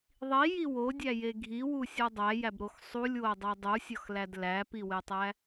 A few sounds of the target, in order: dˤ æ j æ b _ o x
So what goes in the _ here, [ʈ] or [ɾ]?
ɾ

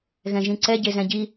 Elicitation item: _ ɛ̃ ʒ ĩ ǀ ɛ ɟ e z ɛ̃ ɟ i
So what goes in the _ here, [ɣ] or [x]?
ɣ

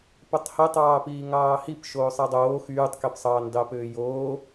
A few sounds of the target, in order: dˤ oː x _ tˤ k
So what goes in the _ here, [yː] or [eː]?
yː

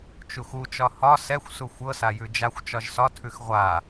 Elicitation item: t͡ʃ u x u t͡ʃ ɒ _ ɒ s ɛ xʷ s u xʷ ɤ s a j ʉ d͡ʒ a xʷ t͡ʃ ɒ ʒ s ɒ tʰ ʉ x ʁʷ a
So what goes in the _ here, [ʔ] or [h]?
h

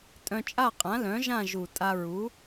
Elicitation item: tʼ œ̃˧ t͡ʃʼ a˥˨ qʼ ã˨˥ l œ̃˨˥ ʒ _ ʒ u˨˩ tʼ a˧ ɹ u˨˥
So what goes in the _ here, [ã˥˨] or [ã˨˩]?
ã˥˨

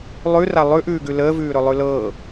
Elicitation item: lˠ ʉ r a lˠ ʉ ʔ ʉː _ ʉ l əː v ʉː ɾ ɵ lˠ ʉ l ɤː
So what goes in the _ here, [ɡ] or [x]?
ɡ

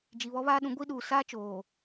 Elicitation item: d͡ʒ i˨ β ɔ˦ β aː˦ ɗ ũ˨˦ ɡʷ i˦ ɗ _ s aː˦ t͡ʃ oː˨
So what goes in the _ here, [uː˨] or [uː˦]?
uː˨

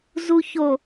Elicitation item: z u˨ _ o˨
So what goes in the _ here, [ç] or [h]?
ç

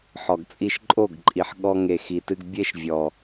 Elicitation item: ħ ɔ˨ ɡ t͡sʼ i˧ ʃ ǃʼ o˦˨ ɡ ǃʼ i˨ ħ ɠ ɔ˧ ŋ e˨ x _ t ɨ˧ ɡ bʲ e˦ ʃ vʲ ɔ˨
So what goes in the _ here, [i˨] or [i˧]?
i˨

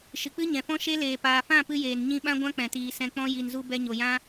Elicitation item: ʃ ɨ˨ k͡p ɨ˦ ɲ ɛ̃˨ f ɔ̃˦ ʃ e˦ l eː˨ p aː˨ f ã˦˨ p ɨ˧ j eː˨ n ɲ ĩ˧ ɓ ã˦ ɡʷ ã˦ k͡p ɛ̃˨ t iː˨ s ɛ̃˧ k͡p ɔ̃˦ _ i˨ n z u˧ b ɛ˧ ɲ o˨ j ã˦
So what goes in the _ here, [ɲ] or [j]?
j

